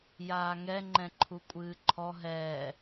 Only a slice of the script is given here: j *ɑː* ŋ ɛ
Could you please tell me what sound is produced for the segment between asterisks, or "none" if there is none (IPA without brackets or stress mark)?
aː